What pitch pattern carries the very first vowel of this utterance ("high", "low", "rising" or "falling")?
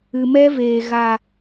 low